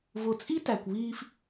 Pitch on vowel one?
low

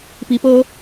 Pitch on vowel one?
rising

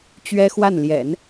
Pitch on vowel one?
high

